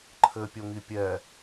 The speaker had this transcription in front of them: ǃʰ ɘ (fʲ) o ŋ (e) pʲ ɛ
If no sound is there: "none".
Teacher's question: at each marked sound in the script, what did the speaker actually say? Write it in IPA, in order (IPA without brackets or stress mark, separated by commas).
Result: pʲ, i